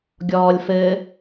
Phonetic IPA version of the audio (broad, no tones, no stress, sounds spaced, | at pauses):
ɡʲ ɔː lʲ f ɘ